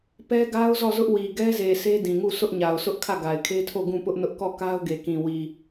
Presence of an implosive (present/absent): absent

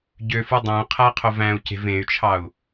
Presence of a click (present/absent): absent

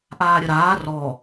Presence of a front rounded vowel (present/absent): absent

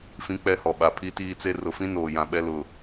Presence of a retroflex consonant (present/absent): absent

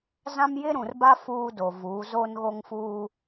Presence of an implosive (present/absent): absent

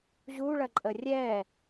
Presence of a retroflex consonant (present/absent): present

